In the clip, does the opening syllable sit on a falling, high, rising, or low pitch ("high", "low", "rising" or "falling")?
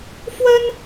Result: high